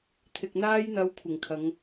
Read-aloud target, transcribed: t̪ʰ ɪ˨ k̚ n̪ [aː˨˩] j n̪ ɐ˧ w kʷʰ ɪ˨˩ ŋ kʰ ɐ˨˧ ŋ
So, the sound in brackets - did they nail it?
no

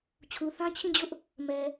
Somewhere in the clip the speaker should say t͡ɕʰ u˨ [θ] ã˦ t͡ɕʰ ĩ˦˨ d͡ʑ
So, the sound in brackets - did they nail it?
yes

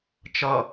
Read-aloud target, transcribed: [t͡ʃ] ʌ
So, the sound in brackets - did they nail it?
yes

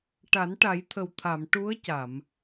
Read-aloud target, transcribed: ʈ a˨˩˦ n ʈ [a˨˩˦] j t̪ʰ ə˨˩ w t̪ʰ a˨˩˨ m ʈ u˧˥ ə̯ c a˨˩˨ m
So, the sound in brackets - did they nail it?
yes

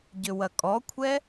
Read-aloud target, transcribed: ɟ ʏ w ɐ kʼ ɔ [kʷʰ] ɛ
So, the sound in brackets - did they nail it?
yes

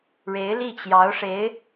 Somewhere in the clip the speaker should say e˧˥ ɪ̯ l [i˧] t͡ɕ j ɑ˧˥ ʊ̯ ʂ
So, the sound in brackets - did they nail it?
no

